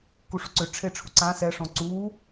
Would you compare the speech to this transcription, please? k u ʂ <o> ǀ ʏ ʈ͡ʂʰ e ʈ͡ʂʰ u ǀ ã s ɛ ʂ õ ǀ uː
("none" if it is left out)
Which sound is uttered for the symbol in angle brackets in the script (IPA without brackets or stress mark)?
o